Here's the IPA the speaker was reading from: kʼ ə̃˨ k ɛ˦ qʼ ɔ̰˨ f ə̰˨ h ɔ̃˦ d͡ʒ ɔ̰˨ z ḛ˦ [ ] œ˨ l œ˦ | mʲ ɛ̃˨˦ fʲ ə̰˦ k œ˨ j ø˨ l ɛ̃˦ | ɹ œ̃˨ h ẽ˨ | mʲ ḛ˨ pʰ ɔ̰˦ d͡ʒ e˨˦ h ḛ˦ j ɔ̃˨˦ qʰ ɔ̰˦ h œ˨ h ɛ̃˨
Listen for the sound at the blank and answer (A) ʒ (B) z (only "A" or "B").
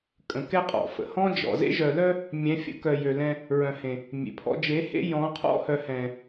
A